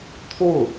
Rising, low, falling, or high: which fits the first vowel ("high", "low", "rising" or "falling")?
falling